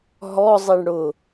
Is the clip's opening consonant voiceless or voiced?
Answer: voiced